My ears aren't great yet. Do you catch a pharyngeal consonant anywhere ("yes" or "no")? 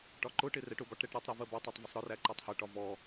no